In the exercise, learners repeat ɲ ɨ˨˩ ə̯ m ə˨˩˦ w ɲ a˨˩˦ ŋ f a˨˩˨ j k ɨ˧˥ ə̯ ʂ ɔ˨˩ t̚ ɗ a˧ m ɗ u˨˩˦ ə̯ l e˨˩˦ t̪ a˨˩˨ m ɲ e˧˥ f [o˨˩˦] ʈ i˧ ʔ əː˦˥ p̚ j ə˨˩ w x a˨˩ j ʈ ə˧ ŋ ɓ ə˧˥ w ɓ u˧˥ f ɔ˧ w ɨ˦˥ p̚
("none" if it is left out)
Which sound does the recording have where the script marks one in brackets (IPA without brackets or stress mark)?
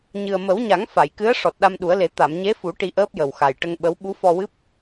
u˨˩˦